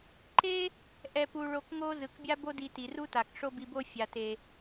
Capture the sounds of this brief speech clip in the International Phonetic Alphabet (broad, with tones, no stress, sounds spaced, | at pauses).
ǃ e˥ | ʔ ɛ˧ p u˧ ɭ o˧ k ŋ o˥ z ɯ˩ k bʲ a˥ b o˥ d i˧ t i˩ r u˥ t a˩ k ʂ o˥ b i˧ b o˥ fʲ a˩ t e˩